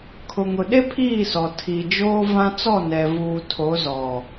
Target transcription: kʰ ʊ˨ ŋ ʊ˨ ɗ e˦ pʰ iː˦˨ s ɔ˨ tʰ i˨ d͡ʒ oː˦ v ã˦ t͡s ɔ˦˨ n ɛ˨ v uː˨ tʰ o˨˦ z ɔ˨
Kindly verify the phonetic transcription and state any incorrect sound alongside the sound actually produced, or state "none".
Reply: none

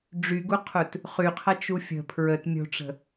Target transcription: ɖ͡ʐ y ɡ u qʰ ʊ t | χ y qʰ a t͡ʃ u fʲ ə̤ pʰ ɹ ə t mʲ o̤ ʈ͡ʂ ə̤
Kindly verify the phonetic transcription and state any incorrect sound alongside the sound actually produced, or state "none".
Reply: none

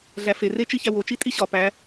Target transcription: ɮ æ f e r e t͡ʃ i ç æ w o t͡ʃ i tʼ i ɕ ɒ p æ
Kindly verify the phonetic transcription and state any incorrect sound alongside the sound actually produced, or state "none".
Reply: none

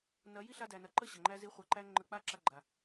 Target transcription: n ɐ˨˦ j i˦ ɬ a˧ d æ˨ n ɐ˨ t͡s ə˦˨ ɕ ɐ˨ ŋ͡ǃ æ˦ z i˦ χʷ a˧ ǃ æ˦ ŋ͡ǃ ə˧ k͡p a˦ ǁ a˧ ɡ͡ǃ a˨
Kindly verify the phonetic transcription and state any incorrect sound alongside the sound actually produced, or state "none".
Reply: t͡s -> ǃ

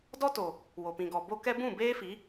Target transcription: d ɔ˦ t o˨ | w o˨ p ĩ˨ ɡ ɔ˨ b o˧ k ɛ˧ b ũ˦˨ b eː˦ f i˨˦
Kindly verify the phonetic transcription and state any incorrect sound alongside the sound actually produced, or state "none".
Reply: none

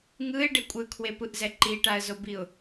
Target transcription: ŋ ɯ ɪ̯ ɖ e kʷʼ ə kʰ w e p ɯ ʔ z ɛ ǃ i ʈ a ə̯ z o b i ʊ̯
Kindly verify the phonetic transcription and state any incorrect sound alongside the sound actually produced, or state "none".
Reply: ə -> ɯ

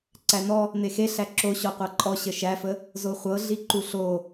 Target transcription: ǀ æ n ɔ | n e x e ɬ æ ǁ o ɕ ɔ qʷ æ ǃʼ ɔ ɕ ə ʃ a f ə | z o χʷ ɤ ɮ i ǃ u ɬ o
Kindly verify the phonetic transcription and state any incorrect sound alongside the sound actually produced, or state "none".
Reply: a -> æ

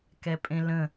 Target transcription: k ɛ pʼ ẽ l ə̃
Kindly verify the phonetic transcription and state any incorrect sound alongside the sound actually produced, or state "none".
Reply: none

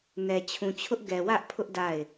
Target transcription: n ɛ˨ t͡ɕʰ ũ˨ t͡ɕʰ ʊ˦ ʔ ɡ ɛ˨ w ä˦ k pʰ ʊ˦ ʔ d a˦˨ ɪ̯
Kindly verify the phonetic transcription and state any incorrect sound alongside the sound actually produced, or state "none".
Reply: k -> ʔ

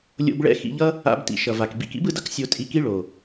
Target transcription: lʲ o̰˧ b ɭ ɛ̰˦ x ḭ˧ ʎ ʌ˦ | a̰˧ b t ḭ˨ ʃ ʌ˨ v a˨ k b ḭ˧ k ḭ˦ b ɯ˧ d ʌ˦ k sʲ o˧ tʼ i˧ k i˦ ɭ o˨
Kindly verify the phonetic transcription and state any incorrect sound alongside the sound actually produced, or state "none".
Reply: none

